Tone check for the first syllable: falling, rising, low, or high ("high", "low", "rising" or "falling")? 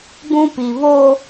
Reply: high